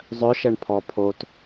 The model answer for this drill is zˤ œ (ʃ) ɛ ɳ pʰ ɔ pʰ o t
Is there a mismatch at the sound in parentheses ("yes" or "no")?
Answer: no